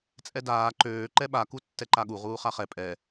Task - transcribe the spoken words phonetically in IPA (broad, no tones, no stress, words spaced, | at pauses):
t͡sʼɛdaː ǃøː ǃɛɓa kutːɛǃaɠu ʁuːχaχɛ pʼɛ